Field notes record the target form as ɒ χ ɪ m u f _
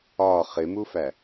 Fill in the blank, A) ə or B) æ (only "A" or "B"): B